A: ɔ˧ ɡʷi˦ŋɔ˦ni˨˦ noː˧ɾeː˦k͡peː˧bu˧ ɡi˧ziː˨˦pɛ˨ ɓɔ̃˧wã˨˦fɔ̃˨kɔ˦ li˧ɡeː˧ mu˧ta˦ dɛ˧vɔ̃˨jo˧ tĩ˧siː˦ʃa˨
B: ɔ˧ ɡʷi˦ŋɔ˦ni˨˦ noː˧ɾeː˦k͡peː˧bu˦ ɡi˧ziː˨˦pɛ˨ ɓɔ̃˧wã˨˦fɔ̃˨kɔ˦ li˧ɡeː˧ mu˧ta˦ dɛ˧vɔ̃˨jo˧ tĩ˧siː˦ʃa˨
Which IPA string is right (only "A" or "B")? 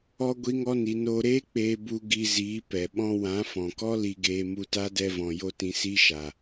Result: A